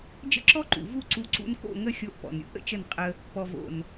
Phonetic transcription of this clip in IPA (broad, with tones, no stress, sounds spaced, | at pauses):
d͡ʒ ə̰˦ ǁ ɔ˦ ǃ ṵ˨ v u˦ ǀ u˧ ǀ ṵ˧ n k o̰˦˨ ŋ ə˦ xʲ o˧ ʔ p ɔ̰˨ n ɾʲ ṵ˦ ʔ ə̰˧ t͡ʃ ə˦˨ n qʼ ə˧ | p ɔ˨ v o̰˨ n